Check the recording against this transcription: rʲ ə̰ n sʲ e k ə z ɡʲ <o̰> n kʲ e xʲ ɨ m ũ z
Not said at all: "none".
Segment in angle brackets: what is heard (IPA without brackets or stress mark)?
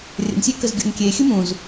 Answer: o̰